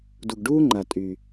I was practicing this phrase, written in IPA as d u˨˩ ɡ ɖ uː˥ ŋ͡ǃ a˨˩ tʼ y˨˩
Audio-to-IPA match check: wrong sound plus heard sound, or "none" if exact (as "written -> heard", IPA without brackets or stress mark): none